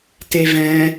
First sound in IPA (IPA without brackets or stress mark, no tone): t